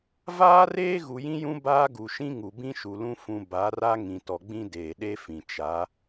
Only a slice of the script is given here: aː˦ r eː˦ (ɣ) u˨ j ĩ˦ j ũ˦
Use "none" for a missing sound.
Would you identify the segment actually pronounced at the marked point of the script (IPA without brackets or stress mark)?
ɣ